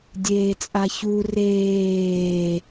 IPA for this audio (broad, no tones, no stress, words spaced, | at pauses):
dʲeːt͡sʼaçu reː